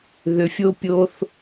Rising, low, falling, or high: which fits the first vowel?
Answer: low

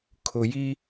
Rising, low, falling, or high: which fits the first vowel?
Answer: low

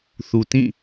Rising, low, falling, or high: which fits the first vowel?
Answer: low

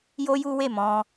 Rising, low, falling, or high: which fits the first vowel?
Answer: high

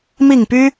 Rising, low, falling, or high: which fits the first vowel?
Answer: falling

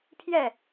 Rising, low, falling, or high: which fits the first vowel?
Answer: falling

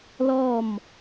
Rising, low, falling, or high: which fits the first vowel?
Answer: falling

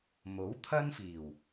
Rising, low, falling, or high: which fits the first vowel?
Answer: rising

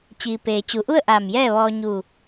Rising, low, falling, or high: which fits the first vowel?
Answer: low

